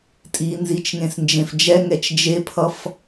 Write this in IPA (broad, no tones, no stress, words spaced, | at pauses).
tʼinzit͡ʃŋẽs nd͡ʒẽfd͡ʒɛŋɛt͡ʃ d͡ʒepʰʌf